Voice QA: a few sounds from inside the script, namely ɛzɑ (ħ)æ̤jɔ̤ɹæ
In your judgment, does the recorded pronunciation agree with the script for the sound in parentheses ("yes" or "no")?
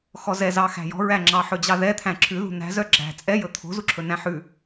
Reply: no